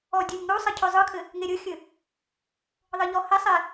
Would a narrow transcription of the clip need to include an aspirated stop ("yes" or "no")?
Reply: yes